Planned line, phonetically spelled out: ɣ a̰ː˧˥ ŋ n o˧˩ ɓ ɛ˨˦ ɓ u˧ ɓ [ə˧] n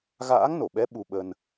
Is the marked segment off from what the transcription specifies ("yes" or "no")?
no